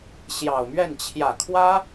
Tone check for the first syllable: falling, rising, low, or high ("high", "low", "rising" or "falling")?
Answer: low